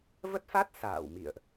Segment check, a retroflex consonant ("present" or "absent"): absent